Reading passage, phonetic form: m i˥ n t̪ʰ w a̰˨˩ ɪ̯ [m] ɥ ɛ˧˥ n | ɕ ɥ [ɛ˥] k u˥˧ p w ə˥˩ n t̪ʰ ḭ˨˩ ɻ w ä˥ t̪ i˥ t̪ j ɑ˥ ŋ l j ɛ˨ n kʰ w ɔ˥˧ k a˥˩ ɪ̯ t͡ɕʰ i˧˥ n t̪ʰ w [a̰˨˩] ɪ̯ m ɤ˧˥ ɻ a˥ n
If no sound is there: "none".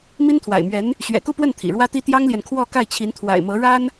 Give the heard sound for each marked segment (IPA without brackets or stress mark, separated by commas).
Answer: m, ɛ̰˨˩, a̰˨˩